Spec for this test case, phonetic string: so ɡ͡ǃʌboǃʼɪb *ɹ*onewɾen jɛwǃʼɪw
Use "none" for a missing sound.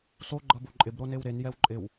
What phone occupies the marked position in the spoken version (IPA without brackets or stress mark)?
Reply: ɾ